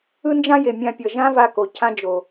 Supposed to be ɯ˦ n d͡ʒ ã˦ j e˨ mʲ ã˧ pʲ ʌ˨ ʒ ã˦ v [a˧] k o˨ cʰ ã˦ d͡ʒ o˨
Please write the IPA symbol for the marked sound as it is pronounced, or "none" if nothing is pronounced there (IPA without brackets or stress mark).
a˧